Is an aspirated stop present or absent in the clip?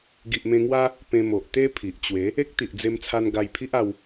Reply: present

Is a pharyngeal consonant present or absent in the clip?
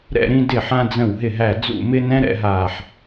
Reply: present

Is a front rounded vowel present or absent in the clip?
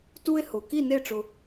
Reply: absent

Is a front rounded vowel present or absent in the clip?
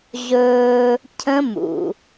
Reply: absent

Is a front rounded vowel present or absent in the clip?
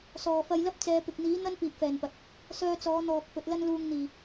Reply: present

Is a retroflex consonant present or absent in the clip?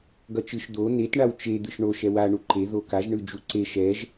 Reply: present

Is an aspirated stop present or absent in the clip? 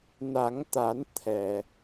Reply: present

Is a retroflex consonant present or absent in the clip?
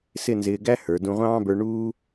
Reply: present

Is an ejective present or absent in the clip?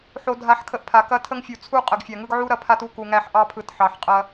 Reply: present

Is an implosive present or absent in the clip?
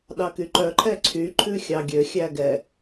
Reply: present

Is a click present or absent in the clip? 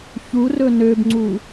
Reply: present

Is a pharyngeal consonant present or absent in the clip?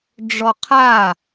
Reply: absent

